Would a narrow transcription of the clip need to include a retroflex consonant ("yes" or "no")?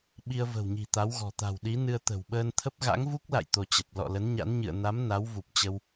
no